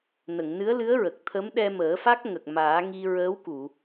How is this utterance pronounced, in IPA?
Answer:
n ə˨˩˨ ŋ n ɨ˧˥ ə̯ l ɨ˧˥ ə̯ ɹ ə˨˩ k̚ t̪ʰ ə˧˥ m ɗ ɛ˧ m əː˨˩˦ f a˦˥ k̚ ŋ ə˨˩ k̚ m aː˨˩˦ ŋ i˧ ɹ əː˧˥ w k u˨˩˨

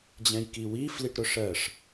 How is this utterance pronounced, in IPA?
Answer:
d͡ʑ ɛ̃ j k i w i f l i ʈ ɾ ʊ ʂ ɜ ʂ

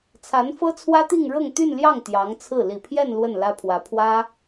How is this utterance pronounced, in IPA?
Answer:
t͡sʰ a˧˥ n f ɤ˥ t͡sʰ w ä˥ t̪ i˥˧ ŋ ɻ ɤ˥˧ ŋ t̪ y˥˧ n l j ɑ˥˩ ŋ t̪ j ɑ˧˥ ŋ t͡sʰ ɹ̩˥˩ l i˨˩ pʰ j ɛ˥˧ n l w ə˥˩ n l ä˥ pʰ w ä˧˥ pʰ w ä˥

